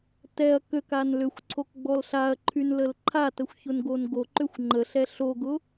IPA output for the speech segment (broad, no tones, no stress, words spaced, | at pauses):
tɛɐ̯ køkan lʏxʷǀʰokɡ͡bɔl ɬaɐ̯ǃʰynləl ǃʰatəxʷçʊnɡon ɡoǃʏxʷ ŋ͡ǃəɬɛ ɬoɡʊ